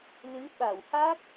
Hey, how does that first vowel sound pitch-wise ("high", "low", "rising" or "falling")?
rising